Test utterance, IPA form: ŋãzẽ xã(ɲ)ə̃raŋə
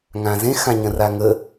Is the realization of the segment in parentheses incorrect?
no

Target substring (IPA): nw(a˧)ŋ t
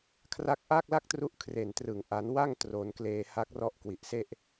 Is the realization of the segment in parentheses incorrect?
yes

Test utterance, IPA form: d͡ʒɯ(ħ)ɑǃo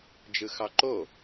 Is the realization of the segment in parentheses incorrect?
yes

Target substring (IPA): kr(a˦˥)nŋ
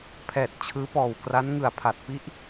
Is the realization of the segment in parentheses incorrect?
no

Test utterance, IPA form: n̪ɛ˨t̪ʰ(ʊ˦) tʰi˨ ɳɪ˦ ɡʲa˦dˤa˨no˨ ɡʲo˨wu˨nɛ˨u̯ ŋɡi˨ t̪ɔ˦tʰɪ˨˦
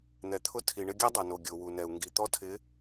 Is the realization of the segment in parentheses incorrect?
no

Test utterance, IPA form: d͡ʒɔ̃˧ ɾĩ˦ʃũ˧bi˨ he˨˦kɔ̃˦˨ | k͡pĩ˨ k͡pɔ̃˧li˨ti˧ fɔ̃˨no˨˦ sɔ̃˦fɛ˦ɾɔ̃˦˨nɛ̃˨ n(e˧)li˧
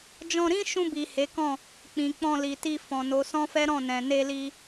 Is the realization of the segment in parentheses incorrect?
no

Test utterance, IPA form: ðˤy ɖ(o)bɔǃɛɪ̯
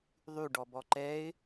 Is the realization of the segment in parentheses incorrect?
yes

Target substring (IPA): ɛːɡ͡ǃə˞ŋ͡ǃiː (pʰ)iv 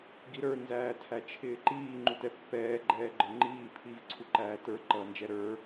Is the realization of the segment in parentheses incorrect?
no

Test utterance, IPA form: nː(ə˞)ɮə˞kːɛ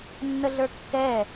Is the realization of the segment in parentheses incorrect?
yes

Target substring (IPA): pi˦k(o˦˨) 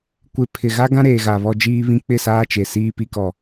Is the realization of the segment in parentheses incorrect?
yes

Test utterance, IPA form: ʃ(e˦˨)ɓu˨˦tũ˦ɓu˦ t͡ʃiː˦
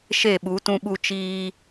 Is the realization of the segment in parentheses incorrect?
no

